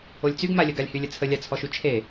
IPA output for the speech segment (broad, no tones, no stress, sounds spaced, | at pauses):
o lʲ t͡s y ɡ m a lʲ ə ɡ a lʲ h y lʲ ə t͡sʰ ə lʲ a t͡sʰ ɔ ʃ y t͡ʃʰ e